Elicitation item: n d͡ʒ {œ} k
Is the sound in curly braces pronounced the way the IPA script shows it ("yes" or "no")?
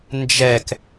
no